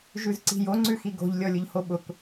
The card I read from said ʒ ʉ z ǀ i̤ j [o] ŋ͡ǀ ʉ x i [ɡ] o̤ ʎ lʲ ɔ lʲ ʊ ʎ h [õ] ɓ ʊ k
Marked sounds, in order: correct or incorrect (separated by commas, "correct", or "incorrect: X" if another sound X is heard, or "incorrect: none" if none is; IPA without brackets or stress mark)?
correct, correct, incorrect: o